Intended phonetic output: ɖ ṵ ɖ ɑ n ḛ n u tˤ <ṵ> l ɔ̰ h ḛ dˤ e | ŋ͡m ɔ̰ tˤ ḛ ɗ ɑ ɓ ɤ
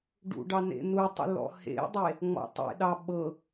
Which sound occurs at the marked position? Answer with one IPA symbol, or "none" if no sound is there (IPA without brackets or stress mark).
ṵ